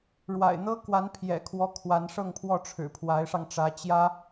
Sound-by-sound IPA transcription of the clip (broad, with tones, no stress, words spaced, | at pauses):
ɻwa̰˨˩ɪ̯n̪ɤ˥kwa˧˥n pʰjɛ̰˨˩kʰwɔ˧˥ kʰwa˧˥n ʂɤ˥˧ŋpʰwɔ˥˩ ʈ͡ʂʰɻ̩˨˩pʰwa˧˥ɪ̯ʂɑ˧ŋʈ͡ʂä˧˥ t͡ɕjä˥